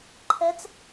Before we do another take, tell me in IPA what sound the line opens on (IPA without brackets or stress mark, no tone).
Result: ǃʰ